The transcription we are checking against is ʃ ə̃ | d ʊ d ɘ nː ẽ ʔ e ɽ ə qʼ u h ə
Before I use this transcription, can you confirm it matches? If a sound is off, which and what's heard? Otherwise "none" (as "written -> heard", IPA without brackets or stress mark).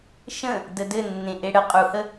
ʊ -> ə